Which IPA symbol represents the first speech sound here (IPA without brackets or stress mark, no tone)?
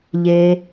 ʎ